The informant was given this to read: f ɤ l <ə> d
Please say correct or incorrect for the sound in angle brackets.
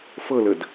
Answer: correct